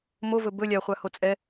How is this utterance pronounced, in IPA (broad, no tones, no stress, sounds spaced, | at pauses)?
m o v ɵ b ɵ lʲ a χʷ a h o t͡sʼ ɛ